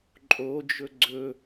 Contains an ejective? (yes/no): yes